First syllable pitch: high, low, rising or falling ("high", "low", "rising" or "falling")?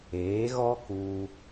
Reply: rising